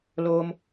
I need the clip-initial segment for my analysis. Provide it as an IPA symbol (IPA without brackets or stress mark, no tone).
l